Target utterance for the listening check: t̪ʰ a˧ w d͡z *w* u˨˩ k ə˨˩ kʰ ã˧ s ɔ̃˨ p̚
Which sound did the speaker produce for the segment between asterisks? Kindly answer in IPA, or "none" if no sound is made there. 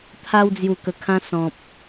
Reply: j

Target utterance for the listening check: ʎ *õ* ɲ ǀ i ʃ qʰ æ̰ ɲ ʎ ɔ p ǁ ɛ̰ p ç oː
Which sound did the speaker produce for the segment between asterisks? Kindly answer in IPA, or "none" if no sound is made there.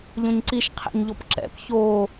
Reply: õ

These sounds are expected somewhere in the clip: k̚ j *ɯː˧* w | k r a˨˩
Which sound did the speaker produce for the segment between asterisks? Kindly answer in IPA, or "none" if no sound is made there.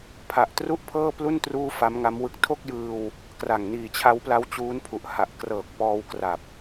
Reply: ɯː˧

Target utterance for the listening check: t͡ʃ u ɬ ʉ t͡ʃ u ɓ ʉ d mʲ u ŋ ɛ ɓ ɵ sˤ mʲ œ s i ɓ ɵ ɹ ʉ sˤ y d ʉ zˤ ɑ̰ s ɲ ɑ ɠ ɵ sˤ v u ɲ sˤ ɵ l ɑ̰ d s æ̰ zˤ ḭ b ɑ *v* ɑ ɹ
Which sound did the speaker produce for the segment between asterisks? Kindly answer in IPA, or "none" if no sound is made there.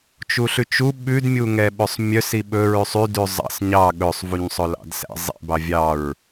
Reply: vʲ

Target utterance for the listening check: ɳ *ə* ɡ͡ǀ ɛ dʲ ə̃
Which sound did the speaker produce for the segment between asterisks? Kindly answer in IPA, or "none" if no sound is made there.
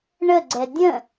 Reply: ə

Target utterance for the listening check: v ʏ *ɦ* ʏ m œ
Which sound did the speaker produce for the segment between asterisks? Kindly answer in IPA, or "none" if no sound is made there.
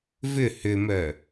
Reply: h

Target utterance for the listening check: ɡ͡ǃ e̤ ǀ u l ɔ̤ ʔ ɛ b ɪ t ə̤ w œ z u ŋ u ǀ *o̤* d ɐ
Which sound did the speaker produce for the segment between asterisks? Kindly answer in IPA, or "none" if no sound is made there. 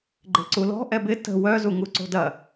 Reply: o̤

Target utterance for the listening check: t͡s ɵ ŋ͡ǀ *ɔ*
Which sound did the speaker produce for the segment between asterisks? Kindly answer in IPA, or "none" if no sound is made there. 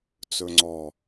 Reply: ɔ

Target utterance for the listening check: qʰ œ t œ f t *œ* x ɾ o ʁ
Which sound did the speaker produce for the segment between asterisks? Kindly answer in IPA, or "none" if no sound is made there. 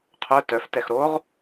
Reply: ɛ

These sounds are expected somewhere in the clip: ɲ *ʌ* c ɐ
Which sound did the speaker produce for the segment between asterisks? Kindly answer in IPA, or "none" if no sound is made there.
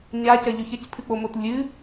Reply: a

